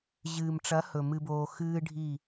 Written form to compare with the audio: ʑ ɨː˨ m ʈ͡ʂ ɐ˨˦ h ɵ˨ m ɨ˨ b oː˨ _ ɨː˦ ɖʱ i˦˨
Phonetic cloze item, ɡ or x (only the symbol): x